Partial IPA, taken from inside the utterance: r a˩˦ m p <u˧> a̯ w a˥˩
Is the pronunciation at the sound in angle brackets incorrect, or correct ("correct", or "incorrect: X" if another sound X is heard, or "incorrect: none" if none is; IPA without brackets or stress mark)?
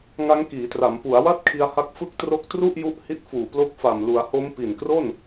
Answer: incorrect: u˩˦